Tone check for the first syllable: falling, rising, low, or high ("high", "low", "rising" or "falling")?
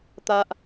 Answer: high